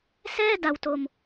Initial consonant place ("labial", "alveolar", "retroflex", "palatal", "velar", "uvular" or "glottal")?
alveolar